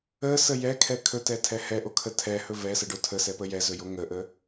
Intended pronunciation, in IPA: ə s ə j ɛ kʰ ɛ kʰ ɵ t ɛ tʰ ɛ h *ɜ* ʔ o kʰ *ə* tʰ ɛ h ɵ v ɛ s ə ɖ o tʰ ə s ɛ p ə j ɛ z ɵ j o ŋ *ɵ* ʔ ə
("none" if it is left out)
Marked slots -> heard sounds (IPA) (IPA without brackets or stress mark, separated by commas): ɛ, ə, ə